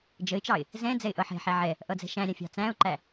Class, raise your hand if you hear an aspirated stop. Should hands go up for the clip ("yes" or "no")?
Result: no